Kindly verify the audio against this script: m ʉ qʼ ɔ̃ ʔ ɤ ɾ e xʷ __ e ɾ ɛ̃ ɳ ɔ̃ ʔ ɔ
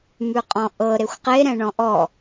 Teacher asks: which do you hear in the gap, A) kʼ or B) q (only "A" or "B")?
B